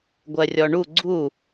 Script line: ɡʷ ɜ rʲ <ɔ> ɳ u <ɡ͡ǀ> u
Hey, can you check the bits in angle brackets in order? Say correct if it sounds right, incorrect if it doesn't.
correct, correct

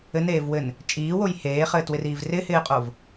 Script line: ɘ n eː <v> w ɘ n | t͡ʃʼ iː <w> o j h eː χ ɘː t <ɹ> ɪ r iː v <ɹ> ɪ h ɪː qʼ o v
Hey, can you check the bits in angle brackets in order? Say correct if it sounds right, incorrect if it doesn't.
correct, correct, incorrect: w, incorrect: r

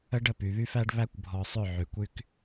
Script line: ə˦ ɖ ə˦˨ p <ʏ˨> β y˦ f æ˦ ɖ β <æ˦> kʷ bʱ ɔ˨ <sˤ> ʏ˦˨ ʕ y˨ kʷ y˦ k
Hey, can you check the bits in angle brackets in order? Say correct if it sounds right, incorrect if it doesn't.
incorrect: y˨, correct, correct

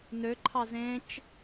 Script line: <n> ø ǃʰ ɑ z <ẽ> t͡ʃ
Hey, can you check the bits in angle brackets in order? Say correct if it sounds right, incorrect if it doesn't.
correct, correct

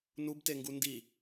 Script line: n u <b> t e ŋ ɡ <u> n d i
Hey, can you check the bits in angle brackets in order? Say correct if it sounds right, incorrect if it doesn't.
correct, correct

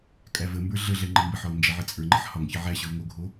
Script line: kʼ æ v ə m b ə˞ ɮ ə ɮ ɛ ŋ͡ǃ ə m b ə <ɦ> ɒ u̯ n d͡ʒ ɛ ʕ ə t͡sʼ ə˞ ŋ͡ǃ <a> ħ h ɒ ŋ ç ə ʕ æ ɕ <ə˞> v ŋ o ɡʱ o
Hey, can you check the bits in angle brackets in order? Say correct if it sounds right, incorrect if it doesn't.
incorrect: ħ, incorrect: ə, correct

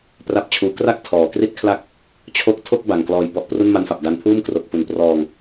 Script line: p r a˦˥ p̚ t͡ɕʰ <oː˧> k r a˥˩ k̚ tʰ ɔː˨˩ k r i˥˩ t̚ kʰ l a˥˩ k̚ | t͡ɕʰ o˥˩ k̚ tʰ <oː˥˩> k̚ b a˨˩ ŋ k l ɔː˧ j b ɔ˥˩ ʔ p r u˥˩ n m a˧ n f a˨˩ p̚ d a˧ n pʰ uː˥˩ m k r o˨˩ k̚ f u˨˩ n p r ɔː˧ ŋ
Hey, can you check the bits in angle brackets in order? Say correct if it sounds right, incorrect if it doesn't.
incorrect: uː˧, incorrect: o˥˩

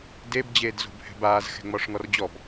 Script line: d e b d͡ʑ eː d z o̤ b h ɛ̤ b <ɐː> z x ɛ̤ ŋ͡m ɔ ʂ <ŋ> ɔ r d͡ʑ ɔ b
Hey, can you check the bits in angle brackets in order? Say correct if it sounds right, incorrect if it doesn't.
incorrect: aː, correct

